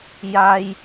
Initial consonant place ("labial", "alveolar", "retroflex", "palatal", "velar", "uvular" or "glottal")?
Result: palatal